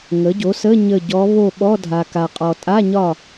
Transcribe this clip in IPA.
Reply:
ŋ ə˩˥ ɟ o˩˥ s ə˧˥˧ ɲ ə˦˨ ɟ ɔ˧˥ β o˦˨ ɓ ɔ˧˥˧ dʱ a˨ k a˨ qʼ ɔ˨ tʼ a˧˥˧ ɲ ɒ˦˨

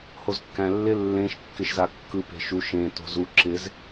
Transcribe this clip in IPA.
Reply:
h o z kː æ̃ lː ɪ lː ẽ ʃ kː ɪ ʃ z a kː ɯ p e̤ ʃ u ʃ ẽ t o̤ z u ǁ ɪ z

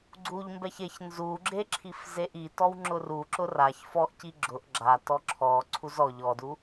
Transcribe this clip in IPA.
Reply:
ɡ͡ǀ u ʎ m b ɛ ç e ç n z u ɡ͡ǁ e ǁʰ i f z e ʔ i t ɔ w ŋ͡ǁ ʊ r u ǁ ʊ r a ç f ɔ ʔ c i ɡ͡ǁ ʊ ʔ ɡ͡ǁ a t ɔ ǁʰ ɔ ǀʰ u z ɔ ʎ ɔ d u

